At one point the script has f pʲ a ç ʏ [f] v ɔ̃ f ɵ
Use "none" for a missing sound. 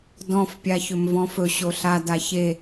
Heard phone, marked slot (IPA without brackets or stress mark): m